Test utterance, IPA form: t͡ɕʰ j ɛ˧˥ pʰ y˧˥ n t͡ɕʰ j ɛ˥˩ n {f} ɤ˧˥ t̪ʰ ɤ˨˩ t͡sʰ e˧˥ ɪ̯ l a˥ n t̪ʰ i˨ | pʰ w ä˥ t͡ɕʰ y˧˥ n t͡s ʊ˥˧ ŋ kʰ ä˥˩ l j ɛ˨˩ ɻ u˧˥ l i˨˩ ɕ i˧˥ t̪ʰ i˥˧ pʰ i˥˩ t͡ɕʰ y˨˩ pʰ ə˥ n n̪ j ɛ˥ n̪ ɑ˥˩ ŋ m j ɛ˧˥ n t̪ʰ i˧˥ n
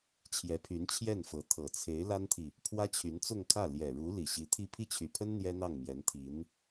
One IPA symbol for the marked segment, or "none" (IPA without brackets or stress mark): f